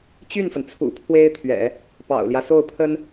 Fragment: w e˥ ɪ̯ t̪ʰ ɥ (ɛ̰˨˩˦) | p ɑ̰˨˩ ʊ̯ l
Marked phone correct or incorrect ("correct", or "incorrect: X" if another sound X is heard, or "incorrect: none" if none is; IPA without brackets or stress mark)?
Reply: correct